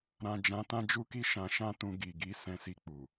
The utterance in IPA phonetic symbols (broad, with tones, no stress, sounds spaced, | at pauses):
ɾ ã˨ d͡ʒ ã˧ t ã˦ d͡ʒ u˦ k i˦ ʃ ã˧ ʃ ã˦ t ũ˧ ɡ i˨ ɡ i˨˦ s ɛ̃˧ s i˧ k͡p u˨